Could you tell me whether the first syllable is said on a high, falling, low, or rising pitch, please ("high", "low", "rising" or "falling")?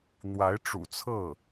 rising